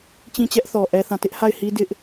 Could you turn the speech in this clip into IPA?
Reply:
t͡ɕ ĩ˦˨ t͡ɕ ɛ˦ ʔ θ ɔ˨ ʔ ɛ˦ θ ã˦˨ t ɪ˦ ʔ h a˦˨ ɪ̯ h i˦ d ɪ˦ ʔ

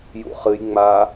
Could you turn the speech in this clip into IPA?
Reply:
j ṵ χ ɨ j ŋ͡m a

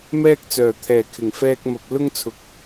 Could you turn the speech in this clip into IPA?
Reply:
m ɛː˥ k̚ t͡s œː˨˩ t̪ʰ ɛː˨˩ kʰ ɪ˨˩ ŋ f ɛː˧ k̚ m ɐ˨ p̚ l ʊ˥ ŋ t͡sʰ ʊ˨˥ k̚

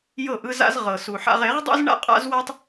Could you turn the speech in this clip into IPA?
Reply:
j ɤ˦˨ ʔ ɯ˦ z a̰˦ z ʁ ɤ˨ s u˨ ħ a̰˦ ʁ e˨˦ ʁ dˤ ṵ˦ z ɳ a̰˦ qʼ a̰˦ z w a˦ tˤ

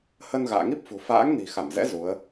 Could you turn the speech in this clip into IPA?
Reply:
h ə˧ n ɣ a̰ː˧˨ ŋ i˦˥ p̚ f ṳ˨˩ f a̰ː˧˥ ŋ n i̤˨˩ x a˧˩ m z ɛ̰˧˥ z u˨˦ ə̯

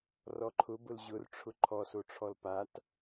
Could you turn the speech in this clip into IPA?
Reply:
r ɔ ǃʰ ʊ b ʊ l ʑ ʊ r ʈ͡ʂʰ ʊ ǃʰ ɔ s o ʈ͡ʂʰ ɔ l p a t

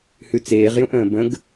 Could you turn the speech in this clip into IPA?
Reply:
h ʉ t͡s eː ʁ j ũ ʔ ə̃ː b ə̃ ɡ

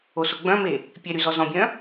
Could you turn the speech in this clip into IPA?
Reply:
o s o ɡ͡b œ̃ m e | pʲ e ɾ y z ɔ z ɔ̃ bʲ œ̃

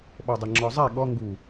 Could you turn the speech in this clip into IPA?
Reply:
ɓ ɔ dˤ ɛ ŋ͡ǁ ɔ zˤ e ɠ ɔ ŋ ɡ u

